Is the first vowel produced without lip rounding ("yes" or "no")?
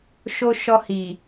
no